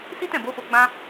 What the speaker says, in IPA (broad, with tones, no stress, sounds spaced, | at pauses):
s i˦ t ɛ̃˦˨ b o˨˦ f o˧ ɡ͡b ã˦